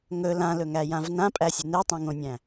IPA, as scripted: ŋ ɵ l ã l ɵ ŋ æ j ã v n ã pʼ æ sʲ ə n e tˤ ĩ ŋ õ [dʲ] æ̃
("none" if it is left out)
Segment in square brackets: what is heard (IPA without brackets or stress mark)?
nʲ